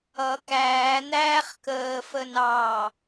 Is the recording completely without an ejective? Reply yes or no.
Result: yes